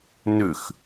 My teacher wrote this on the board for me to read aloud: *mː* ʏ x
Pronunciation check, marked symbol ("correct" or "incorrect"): incorrect